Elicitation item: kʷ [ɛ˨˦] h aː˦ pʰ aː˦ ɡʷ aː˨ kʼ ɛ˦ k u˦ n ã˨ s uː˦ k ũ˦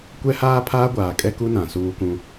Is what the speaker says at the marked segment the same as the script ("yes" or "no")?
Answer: no